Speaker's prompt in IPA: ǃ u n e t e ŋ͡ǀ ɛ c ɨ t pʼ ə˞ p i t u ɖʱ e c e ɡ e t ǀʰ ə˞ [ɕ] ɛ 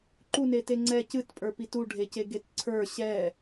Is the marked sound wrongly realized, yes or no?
no